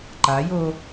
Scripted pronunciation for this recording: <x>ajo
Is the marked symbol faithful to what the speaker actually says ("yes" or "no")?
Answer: no